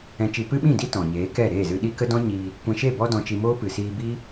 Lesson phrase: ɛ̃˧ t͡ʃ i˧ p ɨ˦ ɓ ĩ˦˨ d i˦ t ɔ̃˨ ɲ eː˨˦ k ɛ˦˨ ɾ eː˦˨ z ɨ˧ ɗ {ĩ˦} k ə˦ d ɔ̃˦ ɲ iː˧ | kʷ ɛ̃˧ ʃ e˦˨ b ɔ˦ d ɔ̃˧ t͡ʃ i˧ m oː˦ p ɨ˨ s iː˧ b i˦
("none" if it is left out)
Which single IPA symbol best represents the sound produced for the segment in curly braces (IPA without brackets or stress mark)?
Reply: i˦